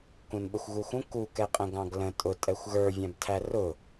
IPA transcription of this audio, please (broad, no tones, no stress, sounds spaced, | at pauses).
k ũ n ɓ ə xʷ ɣ u x ũ k u k ɛ qʼ ə̃ ɡ ɑ̃ ɡ l ə̃ tʼ ʊ tʼ ɛ xʷ ɣ ə˞ vʲ æ̃ b tʰ æ r ʊ